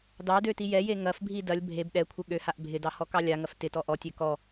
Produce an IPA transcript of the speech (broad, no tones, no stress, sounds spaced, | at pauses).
d ɑ d ø t i j ɛ j e ŋ ɐ f bʱ i d ɐ lʲ bʱ e b ɗ ɛ kʷʰ ɪ ɠ ø h a ʔ bʱ ɪ d ɑ h ɔ k ɑ lʲ a ŋ ɐ f t ɪ t ɔ ʔ ɔ tʲ ø k ɔ